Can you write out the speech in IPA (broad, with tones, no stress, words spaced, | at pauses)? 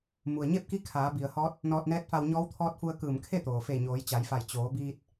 mu˩ə̯ɲe˥˨p̚ki˧˥ kʰaː˩˧ bi˩ə̯hɔː˧˥t̚ | nɔː˧t̚nɛː˧˥t̚fa˧w ɲɔː˧˥wt̪ʰɔː˧˥t̚fu˧ə̯ kɯː˧˩mkʰe˥˨t̪oː˩ fe˧˩ ɲoː˩˧jt͡ɕa˩˧jfa˧˩j t͡ɕoː˩˧biː˧t̚